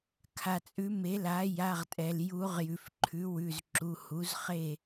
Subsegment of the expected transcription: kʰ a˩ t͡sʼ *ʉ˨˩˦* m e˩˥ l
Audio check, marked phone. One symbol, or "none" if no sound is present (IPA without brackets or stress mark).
ʉ˨˩˦